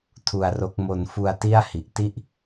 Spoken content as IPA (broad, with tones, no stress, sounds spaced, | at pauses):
tʰ u˧ a̯ r o˦˥ k̚ m o˧ n f u˧ a̯ t i˥˩ a̯ h i˨˩ ʔ t i˥˩ ʔ